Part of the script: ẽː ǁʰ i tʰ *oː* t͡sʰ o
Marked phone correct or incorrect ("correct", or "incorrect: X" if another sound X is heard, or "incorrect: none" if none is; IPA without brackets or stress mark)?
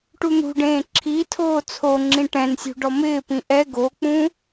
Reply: correct